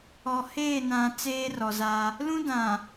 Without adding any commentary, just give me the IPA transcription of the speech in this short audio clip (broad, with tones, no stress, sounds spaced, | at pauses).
ɔ˨ h eː˦˨ n ã˨ t͡s eː˦ r ɔ˨ z a˦ | l ũ˦ d ã˨